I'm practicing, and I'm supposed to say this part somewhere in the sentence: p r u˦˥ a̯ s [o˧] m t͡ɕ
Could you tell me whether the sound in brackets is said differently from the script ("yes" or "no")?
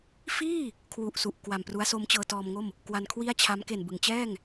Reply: yes